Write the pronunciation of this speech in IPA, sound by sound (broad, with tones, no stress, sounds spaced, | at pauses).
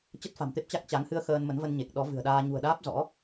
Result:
t͡ɕ ə˦˥ t̚ f a̤˨˩ m t̪ e˦˥ p̚ t͡ɕ a˦˥ k̚ t͡ɕ a˨˦ ŋ h ɨ˧ ə̯ x əː˧ n m ə˨˦ n v ə˧ n ɲ e˨˩ k̚ ɗ ɔ˨˦ v ɨ̤˨˩ ə̯ ɗ aː˧ ɲ ṳ˨˩ ə̯ ɗ aː˦˥ p̚ z ɔ̰˧˥